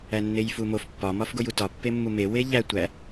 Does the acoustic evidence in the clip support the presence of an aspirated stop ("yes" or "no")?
no